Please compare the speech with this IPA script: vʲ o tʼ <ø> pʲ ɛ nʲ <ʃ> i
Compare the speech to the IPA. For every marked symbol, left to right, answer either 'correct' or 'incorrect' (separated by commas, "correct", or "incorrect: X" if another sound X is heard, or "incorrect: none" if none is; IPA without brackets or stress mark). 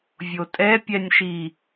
incorrect: ɛ, correct